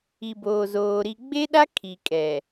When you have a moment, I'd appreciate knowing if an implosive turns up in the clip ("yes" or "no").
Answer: yes